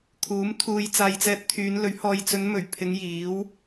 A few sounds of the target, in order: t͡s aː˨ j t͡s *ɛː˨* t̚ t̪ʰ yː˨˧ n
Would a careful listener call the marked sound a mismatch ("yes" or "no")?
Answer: yes